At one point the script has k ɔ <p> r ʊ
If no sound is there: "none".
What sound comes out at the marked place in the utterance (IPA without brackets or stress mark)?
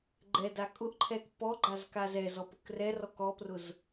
p